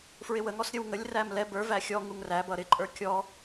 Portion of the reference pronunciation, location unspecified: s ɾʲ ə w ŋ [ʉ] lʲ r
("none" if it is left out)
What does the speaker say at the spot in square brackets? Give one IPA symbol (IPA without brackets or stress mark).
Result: ə